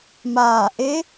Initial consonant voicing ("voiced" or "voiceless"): voiced